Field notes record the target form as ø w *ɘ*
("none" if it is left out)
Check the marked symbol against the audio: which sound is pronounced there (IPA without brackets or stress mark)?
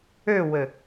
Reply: ɘ